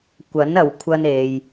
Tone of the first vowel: rising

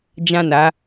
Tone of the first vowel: falling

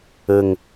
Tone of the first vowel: low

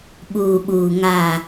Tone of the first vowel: low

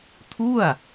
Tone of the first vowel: falling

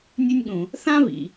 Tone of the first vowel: high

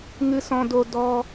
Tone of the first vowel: high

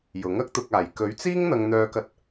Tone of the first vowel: rising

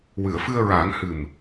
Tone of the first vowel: low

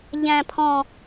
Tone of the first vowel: high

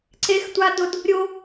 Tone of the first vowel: high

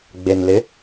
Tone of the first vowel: low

